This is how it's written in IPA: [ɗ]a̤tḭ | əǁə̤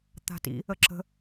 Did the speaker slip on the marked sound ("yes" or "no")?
yes